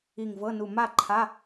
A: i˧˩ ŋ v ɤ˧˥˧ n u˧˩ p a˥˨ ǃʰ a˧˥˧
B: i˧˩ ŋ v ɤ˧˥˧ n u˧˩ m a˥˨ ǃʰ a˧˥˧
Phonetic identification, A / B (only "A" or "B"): B